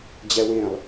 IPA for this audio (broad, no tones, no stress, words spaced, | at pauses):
d͡ʑɛwẽlˠ